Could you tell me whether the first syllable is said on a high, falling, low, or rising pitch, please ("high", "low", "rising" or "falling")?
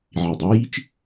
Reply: low